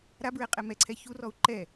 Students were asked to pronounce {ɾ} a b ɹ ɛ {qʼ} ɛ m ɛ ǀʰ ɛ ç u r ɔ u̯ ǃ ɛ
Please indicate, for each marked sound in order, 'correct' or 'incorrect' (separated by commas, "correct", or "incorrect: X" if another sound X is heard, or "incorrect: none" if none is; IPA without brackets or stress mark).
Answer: correct, correct